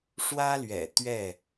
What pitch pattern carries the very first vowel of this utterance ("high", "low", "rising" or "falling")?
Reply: high